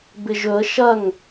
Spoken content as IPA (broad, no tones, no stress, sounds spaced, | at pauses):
b ɪ ʒ ɵ ə̯ ʃ ɐ ŋ